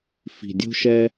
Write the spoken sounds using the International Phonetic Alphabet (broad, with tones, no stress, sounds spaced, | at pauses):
f i̤˨ dʲ o̤˦ ʃ ɛ˦